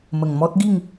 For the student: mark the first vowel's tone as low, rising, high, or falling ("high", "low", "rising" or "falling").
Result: low